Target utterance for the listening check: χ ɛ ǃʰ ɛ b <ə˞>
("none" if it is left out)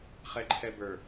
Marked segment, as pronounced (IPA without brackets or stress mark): ə˞